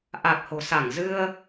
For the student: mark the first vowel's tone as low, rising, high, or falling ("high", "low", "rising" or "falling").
low